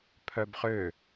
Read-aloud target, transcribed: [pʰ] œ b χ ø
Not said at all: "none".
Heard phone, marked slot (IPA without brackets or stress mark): pʰ